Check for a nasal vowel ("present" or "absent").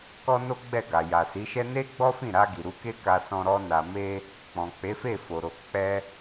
present